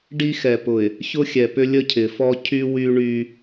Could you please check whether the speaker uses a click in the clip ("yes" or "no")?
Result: no